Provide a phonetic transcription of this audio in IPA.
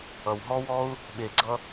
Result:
ʌ˨ w ɦ ɔ˦ w ɔ˦ u̯ | ɓ e˨ ɡ͡ǀ ʌ˧

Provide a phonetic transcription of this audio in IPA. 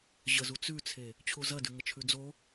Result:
ʑ ə z u t͡s ʉ t͡sʰ e | t͡ɕʰ u z ɐ d ʉ ŋ ə t͡ʃʰ ʉ d͡z o

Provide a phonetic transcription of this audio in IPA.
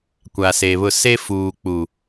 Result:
kʷ a˨ s e˨ β ʊ˦˨ s e˦ f uː˨ k͡p u˨

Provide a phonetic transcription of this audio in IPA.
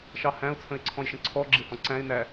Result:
ʃ ɑ h æ̃ ʊ̯ t͡sʰ ə̃ ɪ̯ ǀʰ ɔ̃ j ʃ ə̃ ǀʰ ɔ ɡ͡ǁ ɪ h ɔ̃ ǀ æ̃ ɪ̯ n æ

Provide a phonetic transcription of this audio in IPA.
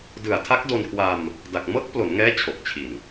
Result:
d ɯ˨˩ a̯ tʰ a˦˥ k̚ d o˧ n kʰ w a˧ m | d a˨˩ k̚ m ɤː˦˥ k̚ p l o˩˦ n ŋ ɛː˦˥ t͡ɕʰ o˨˩ k̚ t͡ɕʰ i˨˩ n

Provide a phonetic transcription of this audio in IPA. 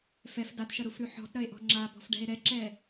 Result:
f ɛ f d a t ʃ ɐ ɾ u f ɾ ʉ ħ ɔ̤ t ɾ ɐ e̯ ʔ ɔ̤ ŋ͡ǁ a b ɔ̤ f ɖ ɛ̤ e̯ ɾ ɛ ǁ ɛ

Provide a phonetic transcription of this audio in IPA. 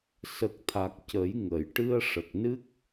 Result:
s ə˨˩ k̚ t̪ʰ a˨˩ k̚ c ə˨˩˦ j ŋ ə˨˩˨ j ʈ ɨ˧ ə̯ ʂ ə˨˩ k̚ n ɨ˦˥ k̚

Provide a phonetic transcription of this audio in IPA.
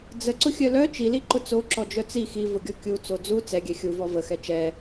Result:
d͡z ə ǀ ʊ xʲ œ l œ t͡ʃ i l i ǃ ʊ t͡s o ǁ ɔ d͡ʒ œ t͡s i x i v ʊ ɡʲ ɔ kʲ u t͡s o d͡z u t͡s ɛ ɡʲ ɛ xʲ u v ɔ v ə x ɛ t͡ʃ ɛ

